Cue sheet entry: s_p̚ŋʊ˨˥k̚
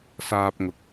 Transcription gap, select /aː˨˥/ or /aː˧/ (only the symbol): aː˧